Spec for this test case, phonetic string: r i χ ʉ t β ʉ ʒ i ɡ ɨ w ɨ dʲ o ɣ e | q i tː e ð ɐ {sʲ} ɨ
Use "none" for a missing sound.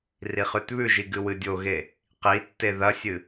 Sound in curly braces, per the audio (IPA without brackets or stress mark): sʲ